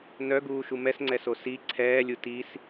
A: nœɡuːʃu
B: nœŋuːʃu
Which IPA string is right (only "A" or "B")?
A